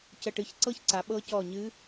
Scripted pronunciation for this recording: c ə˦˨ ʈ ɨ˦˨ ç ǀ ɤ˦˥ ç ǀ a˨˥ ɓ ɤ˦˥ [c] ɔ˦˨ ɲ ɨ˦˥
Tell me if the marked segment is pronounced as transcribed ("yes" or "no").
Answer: yes